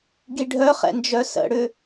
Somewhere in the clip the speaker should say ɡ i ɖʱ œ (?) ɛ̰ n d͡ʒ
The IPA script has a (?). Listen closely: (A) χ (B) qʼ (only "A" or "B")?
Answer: A